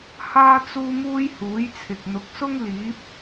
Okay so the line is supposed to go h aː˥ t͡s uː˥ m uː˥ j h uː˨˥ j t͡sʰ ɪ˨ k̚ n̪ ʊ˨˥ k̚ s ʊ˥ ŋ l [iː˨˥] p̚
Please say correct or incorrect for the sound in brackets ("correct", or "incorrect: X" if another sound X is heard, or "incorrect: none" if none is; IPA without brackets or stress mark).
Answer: correct